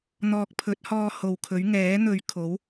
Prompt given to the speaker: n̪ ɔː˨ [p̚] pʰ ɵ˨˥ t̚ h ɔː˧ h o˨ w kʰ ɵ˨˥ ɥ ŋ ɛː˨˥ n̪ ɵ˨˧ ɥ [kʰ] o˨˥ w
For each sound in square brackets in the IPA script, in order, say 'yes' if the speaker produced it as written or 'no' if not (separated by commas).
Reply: no, yes